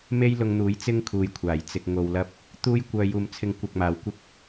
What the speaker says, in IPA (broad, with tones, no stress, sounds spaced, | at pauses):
m e˥ j l ʊ˧ ŋ n̪ uː˨˥ j t͡s ɪ˥ ŋ kʰ uː˨ j kʷʰ aː˨˩ j t͡s ɪ˧ k̚ ŋ o˧ w l ɐ˥ p̚ | t̪ uː˥ j kʷ œː˧ j uː˨ m t͡sʰ ɪ˧ ŋ kʷ ɐ˧ k̚ m aː˨ w kʷ ɪ˥ k̚